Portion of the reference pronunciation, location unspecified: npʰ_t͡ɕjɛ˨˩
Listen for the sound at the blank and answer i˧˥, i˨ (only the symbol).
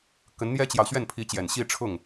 i˧˥